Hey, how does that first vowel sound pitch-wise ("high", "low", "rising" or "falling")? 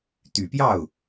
low